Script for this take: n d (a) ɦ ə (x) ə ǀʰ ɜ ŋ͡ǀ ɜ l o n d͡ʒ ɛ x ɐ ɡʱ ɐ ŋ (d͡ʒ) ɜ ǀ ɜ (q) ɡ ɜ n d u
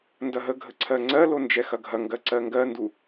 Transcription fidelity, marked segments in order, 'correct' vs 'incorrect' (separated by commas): incorrect, incorrect, incorrect, incorrect